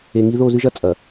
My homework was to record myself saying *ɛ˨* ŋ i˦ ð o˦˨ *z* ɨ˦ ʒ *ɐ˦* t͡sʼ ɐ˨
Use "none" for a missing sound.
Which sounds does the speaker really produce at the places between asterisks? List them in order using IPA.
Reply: e˨, z, ɐ˦

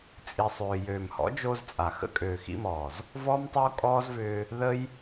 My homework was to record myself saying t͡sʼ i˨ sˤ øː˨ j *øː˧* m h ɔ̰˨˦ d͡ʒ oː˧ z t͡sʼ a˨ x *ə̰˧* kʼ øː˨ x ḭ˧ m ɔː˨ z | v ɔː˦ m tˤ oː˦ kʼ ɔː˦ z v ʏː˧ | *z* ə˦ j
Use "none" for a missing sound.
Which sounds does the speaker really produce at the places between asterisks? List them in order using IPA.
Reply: øː˨, ə̰˧, ð

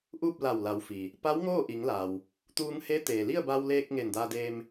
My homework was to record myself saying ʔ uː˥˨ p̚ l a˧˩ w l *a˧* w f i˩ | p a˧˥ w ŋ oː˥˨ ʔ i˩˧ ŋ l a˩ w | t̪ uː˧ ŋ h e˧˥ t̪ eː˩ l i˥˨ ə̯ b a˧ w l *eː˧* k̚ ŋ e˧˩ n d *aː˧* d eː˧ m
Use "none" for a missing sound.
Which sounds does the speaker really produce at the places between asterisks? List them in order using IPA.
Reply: a˩˧, eː˧, aː˧

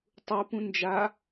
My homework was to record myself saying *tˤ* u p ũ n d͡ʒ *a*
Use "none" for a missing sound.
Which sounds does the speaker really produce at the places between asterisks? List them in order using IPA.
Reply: tˤ, a

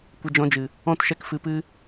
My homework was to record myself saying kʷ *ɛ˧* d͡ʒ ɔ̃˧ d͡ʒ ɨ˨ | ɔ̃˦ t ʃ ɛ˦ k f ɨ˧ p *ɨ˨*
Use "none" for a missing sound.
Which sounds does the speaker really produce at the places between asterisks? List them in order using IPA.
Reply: ə˧, ɨ˦

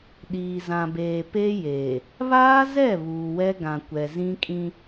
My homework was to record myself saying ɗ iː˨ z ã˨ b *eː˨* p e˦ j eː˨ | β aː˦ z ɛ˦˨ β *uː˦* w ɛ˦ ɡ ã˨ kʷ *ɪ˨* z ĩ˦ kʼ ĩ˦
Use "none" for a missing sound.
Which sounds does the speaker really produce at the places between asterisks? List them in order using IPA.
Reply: eː˨, uː˨, ɛ˨

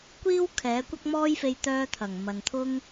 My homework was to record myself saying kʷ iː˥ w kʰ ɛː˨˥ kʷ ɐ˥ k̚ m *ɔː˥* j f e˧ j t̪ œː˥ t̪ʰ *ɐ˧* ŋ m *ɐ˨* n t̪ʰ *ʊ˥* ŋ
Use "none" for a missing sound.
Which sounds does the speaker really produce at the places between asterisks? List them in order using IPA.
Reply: ɔː˥, ɐ˨˩, ɐ˨, ʊ˥

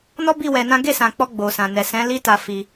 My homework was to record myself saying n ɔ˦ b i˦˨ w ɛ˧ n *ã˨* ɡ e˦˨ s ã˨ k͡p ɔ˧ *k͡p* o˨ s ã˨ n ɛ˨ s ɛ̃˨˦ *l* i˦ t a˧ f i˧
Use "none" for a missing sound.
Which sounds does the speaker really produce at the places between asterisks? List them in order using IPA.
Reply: ã˦, ɡ͡b, l

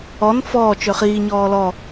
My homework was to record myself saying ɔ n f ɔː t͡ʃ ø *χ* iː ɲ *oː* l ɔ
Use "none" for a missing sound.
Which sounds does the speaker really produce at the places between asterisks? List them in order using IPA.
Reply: χ, ɔː

